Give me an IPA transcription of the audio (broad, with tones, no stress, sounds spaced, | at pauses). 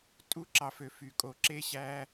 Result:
tʼ u˦˥ ǁ ɑ˨ f ø˨ f y˨ kʼ o˨ ǁ e˦˥ ɕ æ˦˥